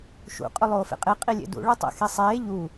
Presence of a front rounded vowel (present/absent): absent